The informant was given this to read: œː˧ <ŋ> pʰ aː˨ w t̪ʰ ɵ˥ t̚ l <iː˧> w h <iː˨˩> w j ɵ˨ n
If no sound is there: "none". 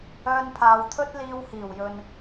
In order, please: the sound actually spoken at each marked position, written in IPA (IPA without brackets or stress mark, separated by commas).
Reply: n, iː˧, iː˨˩